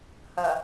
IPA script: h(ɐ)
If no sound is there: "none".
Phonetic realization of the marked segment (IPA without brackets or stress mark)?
ɐ